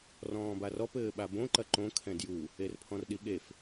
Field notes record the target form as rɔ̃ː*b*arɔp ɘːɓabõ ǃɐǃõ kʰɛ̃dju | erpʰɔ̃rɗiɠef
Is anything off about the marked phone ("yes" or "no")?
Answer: no